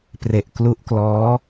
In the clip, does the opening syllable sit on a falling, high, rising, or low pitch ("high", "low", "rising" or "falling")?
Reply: low